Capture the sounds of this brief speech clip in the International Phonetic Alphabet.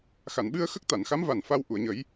xa˨˩˨nɓɨ˧ə̯ xə˦˥k̚t̪a˨˩˨nxa˧˥mva˨˩n fa˧w ʔu˨˩˨ə̯ɲə˨˩˦j

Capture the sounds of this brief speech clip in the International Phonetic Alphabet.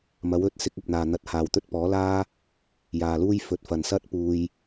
mɐ˨˥w ɵ˨˥t̚ sɪ˧k̚ɐ˨p̚n̪aː˨ n̪ɐ˧t̚haː˨wt̪ɵ˥t̚ pɔː˨˥laː˥ | jaː˨luː˥j fɵ˨˥t̚fɐ˨n sɐ˥t̚ puː˧j

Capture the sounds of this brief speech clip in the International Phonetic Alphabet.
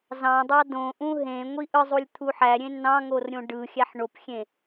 zɑ̃dˤɑ dõʔũ ɦẽ ŋʷiʔɯzˤulʲ t̪ʰuħæɾʲẽ nɑ̃ŋor ɾʲõɖɯxʲæħ ɳopxʲẽ

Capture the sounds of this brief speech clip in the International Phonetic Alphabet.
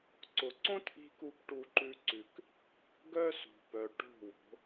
ǀʊ˨ǀõ˦tʔi̤˧ku˧p ʈu˧ǃʉ˧ ǀʉ˨k | ɡœ˦sṳ˨pœ˨ ʈo̤˦˨wo̤˨˦

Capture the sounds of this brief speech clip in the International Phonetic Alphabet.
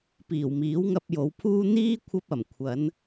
piː˨˩wmiː˨˥wŋɐ˧p̚ jo˨˧wpʰuː˥ n̪iː˥ kʷʰɐ˥p̚ɐ˨˩m kʷʰɐ˨˧n

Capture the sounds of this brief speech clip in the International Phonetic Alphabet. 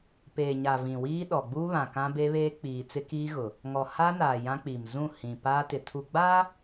peː˨ɲa˨ vĩ˨wiː˦ ɗɔ˨ɡ͡buː˦βã˨ kã˦be˦βeː˦ k͡piː˨t͡sɪ˦kiː˦ɣʊ˨ | ŋɔ˨ ha˦naː˨ jã˦k͡pi˨m zũ˦˨ hĩ˨ paː˦tɪ˨ tʰu˨ɡ͡baː˦

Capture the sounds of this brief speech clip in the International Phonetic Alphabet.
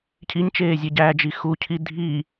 cʰiɲt͡ʃeːzʲe ɟæd͡ʒi xucʰi dʱi

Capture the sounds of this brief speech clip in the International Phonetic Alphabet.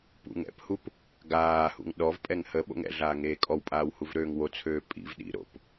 pṵŋɛ̰phup | ɡaːhṵŋ ɗɔvpʼɛŋ hə ɓo̰ŋɛ̰ɮaː ŋeːkʼɔwpʼaːw huvɾøːŋwot͡sʰøː pʼḭv ɗḭɾo̰p

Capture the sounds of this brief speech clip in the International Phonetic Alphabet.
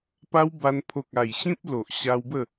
pa˧w ba˧n pʰo˨k̚a˨˩j ɕĩ˦p̚ lo˨ʔ ɕa˧wbə˥˧

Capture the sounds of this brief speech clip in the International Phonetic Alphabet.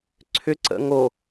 ǀʰʏ ǀə̰ŋo

